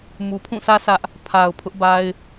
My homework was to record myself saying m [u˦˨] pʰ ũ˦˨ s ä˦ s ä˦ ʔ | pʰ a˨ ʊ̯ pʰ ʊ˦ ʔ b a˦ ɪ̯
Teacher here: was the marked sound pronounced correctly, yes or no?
no